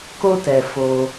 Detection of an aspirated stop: absent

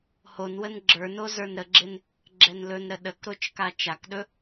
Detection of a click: present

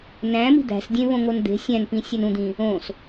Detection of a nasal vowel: present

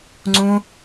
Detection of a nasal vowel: present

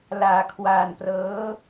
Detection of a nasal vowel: absent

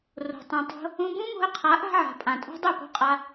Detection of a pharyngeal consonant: present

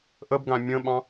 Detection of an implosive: present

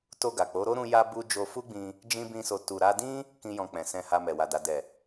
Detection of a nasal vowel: present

